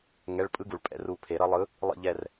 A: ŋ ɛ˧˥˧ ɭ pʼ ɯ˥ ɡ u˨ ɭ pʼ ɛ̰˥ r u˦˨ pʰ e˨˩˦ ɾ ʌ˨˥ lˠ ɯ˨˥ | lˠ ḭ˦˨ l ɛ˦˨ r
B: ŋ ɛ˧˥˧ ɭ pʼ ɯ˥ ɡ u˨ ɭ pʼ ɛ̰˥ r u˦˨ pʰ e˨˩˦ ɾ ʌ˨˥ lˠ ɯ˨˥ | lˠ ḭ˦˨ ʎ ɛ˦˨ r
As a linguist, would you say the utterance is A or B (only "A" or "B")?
B